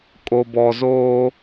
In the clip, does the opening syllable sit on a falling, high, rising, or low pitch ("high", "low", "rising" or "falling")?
low